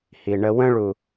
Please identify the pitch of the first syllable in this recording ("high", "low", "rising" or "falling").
low